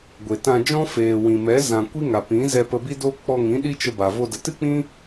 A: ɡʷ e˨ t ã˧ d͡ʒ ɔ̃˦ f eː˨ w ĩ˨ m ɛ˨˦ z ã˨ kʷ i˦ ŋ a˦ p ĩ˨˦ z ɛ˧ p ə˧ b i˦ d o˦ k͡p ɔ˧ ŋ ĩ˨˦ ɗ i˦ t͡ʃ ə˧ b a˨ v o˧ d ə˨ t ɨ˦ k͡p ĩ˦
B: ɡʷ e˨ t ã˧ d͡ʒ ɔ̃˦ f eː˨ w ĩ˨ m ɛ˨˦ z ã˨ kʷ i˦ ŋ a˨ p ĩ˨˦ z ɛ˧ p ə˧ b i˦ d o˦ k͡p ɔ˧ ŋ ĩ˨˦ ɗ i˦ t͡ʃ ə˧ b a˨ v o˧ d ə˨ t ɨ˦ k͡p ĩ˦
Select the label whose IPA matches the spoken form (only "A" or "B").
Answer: B